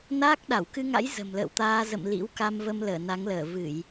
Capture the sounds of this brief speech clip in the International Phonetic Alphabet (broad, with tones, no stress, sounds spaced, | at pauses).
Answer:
n aː˦˥ k̚ ɗ a˧˩ w k ɨ˧ ŋ a̰˧˥ j z ə̤˨˩ m l ə̰ː˧˨ w t̪ aː˧ z ə̰˧˨ m l ḭ˧˥ w k a˧ m v ə˧ m l əː˧˩ n a˨˦ ŋ l əː˧˩ v ɨ˧˩˨ j